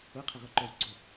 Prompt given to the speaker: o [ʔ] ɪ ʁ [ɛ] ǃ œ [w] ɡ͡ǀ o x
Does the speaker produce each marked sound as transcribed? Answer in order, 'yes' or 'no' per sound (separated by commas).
no, no, yes